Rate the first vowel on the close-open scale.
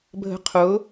mid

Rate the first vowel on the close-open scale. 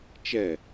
mid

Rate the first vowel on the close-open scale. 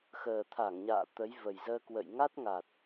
mid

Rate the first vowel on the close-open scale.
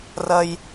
open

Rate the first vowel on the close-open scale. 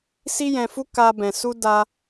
close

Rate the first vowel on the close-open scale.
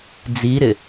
close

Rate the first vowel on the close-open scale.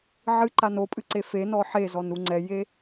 close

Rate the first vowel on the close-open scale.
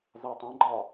open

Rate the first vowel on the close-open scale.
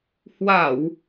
open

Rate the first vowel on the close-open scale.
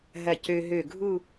open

